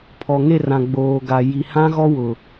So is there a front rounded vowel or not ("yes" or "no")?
no